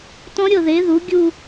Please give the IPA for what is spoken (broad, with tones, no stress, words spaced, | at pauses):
tɔ̃˦˥ɾʲɤ˥˩ðe˩˥ðu˩˥ ɡʲu˥˧